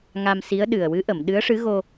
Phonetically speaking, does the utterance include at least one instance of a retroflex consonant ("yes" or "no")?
yes